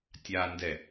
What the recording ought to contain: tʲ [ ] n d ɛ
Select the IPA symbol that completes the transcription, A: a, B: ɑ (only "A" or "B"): A